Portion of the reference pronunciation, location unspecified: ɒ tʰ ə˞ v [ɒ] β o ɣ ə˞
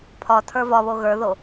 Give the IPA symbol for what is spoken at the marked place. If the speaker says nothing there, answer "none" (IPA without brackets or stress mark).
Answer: ɒ